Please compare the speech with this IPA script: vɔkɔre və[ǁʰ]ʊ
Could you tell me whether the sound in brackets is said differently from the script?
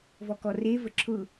no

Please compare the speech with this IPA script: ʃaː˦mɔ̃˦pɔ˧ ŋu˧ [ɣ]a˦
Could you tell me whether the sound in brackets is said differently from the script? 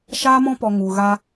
no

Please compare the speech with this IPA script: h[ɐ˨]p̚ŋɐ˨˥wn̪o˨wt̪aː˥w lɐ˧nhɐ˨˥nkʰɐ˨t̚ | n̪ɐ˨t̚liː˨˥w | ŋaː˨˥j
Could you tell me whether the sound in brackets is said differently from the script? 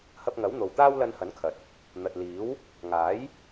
yes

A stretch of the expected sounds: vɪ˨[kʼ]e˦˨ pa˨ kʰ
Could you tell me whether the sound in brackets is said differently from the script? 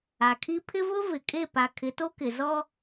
no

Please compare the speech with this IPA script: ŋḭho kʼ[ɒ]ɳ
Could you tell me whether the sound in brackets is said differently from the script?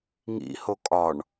no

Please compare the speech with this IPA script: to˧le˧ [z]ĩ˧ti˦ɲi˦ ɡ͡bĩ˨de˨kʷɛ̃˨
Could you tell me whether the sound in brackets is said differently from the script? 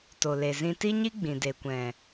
no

